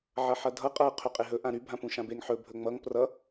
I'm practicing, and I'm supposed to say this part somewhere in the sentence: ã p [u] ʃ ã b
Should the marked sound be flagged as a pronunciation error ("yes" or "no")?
yes